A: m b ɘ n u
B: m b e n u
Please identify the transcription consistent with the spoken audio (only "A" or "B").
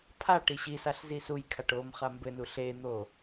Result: A